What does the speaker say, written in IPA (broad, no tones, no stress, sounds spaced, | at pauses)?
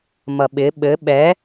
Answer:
m ʌ ɓ ɪ ɓ ɘ ɓ ɛ